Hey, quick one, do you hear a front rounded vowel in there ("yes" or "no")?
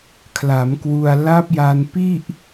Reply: no